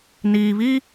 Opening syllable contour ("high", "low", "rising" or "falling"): low